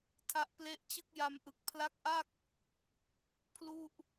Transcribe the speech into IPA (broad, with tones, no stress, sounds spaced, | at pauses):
tʰ a˦˥ ʔ p l e˦˥ ʔ t͡ɕ ɯ˥˩ k̚ j a˧ m ʔ ɯ˨˩ k̚ pʰ l a˦˥ k̚ ʔ a˥˩ k̚ | pʰ l u˥˩ ʔ